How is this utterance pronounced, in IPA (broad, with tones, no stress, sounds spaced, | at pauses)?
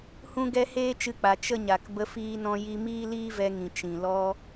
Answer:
h ũ˦ ɡ ɛ˦ h eː˦ t͡ʃ ɨ˧ k͡p a˨ t͡ʃ ə˦ ɲ a˨ k b ə˧ f iː˧ n ɔ̃˧ j i˧ m iː˦ l iː˦ v ɛ˧ ŋ ĩ˨ t͡ʃ ĩ˨ l ɔ˧